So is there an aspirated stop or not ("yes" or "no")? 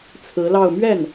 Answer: yes